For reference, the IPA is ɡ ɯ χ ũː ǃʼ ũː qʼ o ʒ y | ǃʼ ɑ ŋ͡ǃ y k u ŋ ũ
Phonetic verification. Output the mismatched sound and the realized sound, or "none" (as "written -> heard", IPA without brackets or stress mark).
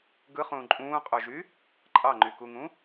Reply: none